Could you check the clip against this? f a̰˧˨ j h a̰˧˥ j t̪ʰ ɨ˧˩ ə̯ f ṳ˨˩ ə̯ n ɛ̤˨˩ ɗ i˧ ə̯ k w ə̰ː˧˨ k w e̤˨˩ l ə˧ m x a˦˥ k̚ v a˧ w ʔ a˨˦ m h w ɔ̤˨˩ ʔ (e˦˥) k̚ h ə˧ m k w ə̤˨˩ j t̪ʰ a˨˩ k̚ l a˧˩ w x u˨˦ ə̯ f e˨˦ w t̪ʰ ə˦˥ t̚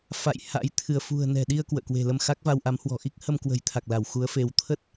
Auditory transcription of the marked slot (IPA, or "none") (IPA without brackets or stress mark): i˦˥